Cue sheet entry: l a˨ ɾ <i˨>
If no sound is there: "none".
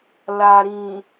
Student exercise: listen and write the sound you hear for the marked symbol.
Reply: ĩ˨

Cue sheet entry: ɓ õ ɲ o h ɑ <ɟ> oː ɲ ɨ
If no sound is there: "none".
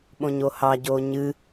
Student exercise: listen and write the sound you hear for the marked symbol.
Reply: ɟ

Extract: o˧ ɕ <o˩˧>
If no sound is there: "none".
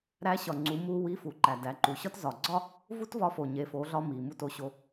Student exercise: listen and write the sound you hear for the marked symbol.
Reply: o˧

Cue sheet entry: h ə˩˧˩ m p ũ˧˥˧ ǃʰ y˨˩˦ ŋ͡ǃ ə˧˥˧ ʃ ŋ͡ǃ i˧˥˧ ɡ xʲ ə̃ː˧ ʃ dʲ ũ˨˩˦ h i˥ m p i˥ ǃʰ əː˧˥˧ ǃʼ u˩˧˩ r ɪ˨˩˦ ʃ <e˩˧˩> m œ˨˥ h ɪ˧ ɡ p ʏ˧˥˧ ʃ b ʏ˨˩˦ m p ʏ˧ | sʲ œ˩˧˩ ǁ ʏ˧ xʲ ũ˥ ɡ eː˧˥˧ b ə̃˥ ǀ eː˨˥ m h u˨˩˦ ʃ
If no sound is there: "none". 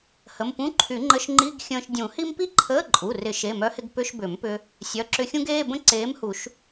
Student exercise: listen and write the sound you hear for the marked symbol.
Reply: e˩˧˩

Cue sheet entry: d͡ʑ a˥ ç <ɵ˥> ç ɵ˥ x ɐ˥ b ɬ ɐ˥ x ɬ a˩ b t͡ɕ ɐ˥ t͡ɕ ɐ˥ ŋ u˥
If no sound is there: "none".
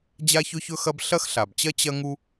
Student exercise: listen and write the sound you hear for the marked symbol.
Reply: ɵ˥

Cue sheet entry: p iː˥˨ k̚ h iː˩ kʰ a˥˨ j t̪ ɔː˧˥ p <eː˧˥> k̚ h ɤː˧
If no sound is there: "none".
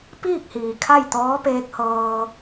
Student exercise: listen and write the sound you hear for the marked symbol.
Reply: eː˧˥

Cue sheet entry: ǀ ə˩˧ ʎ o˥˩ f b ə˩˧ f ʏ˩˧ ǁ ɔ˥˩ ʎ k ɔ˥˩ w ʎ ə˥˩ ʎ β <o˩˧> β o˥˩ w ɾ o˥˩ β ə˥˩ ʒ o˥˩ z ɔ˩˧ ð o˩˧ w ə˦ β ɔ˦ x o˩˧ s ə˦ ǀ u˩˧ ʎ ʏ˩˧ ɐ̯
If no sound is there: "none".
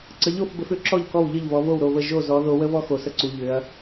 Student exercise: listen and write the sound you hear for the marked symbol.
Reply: ɔ˩˧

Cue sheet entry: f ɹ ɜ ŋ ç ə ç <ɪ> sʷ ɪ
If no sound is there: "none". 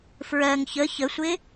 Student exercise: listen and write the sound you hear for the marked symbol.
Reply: ə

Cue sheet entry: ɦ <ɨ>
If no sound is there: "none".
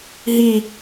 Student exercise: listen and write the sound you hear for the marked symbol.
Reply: i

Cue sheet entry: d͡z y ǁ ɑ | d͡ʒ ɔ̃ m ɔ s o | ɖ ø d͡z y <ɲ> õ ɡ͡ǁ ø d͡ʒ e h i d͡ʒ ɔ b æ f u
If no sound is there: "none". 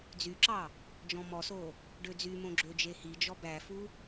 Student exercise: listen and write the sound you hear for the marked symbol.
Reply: m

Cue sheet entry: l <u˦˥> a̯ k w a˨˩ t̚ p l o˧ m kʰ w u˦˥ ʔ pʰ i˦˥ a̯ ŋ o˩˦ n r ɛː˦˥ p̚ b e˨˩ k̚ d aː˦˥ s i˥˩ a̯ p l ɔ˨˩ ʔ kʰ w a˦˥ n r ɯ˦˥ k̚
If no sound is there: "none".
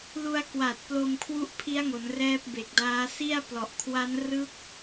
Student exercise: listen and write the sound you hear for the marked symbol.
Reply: u˧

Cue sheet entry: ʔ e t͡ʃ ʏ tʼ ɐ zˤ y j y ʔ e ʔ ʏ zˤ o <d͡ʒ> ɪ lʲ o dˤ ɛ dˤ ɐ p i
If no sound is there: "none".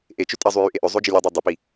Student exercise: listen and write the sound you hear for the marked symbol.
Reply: d͡ʒ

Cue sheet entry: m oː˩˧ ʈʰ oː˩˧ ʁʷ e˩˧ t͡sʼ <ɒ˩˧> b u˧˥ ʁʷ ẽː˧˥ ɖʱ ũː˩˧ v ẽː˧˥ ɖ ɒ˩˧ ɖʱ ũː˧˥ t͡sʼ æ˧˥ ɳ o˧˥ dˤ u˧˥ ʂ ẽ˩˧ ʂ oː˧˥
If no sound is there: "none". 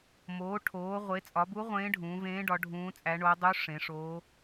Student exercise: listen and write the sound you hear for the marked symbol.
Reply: ɒ˩˧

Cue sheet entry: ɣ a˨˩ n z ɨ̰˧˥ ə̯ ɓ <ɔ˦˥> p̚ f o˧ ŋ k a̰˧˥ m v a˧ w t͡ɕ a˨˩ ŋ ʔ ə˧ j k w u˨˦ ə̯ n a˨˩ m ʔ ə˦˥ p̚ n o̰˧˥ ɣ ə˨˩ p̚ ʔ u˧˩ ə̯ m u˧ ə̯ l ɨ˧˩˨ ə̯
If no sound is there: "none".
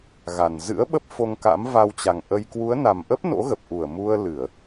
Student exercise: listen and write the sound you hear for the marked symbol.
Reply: ə˦˥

